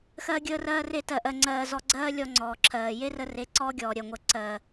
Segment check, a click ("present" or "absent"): present